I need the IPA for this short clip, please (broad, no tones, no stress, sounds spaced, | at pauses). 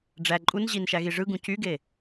ɖ͡ʐ æ ǃʼ u n ʑ i n ʃ æ ɣ i ʐ ɯ ɡ ũ c y ɡ e